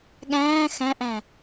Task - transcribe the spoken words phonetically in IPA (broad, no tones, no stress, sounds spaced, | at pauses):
ɠ æ̃ː x æ̃ ʔ æ̃